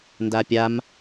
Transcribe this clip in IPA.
n d a pʲ a m

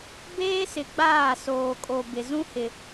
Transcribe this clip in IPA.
b eː˦ s ɪ˨ ɡ͡b aː˦˨ s oː˨ kʼ o˨ b ɪ˨ z ũ˦ h ɪ˨

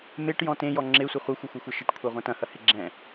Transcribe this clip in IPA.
m e ʈ j ɔ̃ t ẽ j ɔ ŋ͡ǁ e sʷ ɪ χʷ ɐ xʷ ɘ xʷ ɛ xʷ e ʃ ɘ ʈ kʷʰ e ʁʷ ɐ̃ t ɐ̃ h ɐ h ɪ ɡ͡ǁ ɛ̃

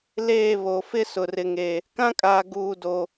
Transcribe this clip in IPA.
l eː˦˨ β o˨ f ɪ˦ s ʊ˨ r ɪ˨ ŋ e˨ | k ã˦ kʼ aː˨ ɡ uː˨ d o˨

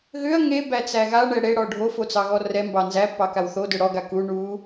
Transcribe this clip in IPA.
ɣ ʏ ɐ̯ ŋ e b æ t͡s æ ɣ a ɳ ɛ ɽ e ɽ ɔ ɖʱ o f o t͡s ɑ ɣ ɔ r ɛ m b ɑ n z æ pː ɑ k a w θ o d ʏ ɽ ɔ ɡ a k u ɳ u

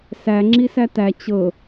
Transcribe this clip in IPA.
s æ ŋ͡ǁ i s æ t æ t͡ɕ ɤ

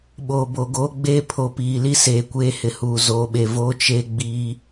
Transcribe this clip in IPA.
ɓ oː˨ b o˨ ɡ oː˦ ɡ͡b eː˦ pʰ o˨ p iː˨ l i˦ s eː˨ kʷ eː˦ h ɪ˨ h uː˨ z oː˨ ɓ e˨ v oː˦ t͡ʃ e˦ ɡ͡b iː˦

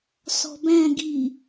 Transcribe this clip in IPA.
s ɔ̤ b æ̃ ɡ i

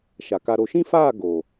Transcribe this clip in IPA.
ʃ a˨ k a˧ ɾ o˨ ʃ ĩ˦ f aː˦˨ ɡ o˨

